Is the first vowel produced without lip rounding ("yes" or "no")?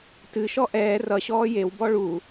yes